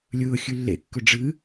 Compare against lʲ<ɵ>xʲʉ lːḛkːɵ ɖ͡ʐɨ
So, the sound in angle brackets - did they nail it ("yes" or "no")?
no